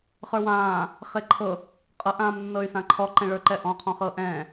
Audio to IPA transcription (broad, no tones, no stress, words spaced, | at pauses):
χə˞wãː | χeǃʰɤ | qʼɤʔ ãːmnːɤy̯sãǃʰɔ ǃɛ̃ɭə˞ǃɛʔɔ̃ qʰɔ̃χɤʔɛ̃ː